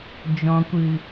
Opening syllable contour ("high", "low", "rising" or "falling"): low